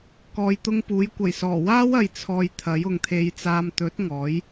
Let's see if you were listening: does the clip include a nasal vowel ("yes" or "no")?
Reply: no